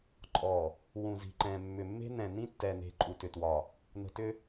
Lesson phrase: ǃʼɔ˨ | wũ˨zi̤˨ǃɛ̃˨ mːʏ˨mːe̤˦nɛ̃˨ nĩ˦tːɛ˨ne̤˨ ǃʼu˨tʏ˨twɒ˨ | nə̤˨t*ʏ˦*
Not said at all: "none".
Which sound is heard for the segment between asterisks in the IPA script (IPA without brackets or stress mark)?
ʏ˦